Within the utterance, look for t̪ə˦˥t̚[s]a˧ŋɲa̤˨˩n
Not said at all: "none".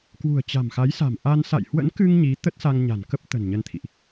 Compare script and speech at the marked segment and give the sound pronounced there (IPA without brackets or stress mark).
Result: s